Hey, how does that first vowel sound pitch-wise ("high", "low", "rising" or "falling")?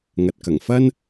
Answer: low